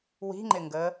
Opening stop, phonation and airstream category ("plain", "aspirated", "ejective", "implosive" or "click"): click